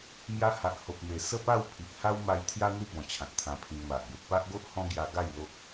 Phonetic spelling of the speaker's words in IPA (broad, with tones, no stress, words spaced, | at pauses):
mja˧ ha˨ʔho˨p̚me˨˩ sə˥˧pa˥˧wpʰi˨ʔ ha˦w ma˧jt̪ʰja˦n̪u˦ bɔ̃˨˩t͡ɕʰã˨t̚t̪ʰã˧pʰĩ˧ŋ ma˨ʔ be˨t̚pa˦ʔɡo˦ʔ hɔ̃˦ɡja˧ɡa˥˧j lo˦k̚